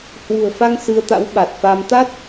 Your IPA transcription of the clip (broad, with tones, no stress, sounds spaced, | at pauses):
h w ṳ˨˩ ə̯ f a˧ ŋ s ɨ˧ ə̯ t̪ a̰˧˥ w ɓ a˨˩ t̚ f a˧ m t̪ a˦˥ t̚